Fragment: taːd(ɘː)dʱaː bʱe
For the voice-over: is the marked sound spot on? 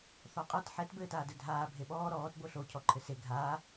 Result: no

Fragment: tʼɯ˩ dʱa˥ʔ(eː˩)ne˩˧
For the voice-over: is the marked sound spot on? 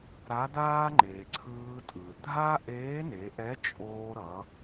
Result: no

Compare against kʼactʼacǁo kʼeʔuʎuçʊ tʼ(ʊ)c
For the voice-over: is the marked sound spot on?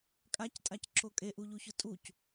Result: no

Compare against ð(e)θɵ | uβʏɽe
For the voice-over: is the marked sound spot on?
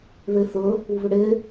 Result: yes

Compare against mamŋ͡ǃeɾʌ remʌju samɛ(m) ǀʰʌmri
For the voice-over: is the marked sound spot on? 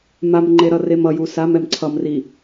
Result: yes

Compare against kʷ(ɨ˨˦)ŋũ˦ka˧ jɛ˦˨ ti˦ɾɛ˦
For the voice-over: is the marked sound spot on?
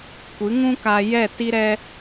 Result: yes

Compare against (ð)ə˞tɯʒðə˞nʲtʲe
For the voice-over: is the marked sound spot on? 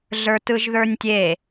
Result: no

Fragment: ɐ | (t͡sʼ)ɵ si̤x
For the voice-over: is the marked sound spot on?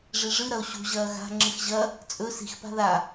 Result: yes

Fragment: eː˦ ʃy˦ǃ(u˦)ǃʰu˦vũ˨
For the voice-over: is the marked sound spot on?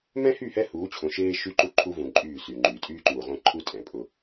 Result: yes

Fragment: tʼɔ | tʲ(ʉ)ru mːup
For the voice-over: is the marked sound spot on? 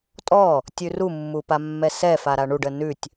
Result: yes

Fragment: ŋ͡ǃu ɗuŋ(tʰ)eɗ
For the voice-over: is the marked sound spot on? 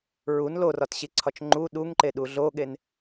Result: no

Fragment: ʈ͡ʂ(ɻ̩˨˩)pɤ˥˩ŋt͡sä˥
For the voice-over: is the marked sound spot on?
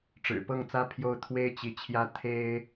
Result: yes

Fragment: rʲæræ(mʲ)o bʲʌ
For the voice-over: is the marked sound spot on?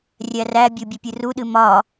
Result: no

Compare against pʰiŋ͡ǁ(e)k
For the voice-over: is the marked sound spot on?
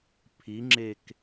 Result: yes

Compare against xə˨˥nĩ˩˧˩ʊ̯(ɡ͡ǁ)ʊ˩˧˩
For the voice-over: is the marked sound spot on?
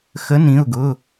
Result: no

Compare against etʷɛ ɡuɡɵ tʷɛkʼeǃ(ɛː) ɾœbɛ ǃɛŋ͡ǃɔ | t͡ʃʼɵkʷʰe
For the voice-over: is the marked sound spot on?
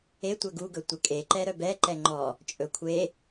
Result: no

